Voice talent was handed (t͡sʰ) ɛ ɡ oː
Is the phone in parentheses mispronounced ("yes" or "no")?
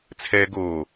no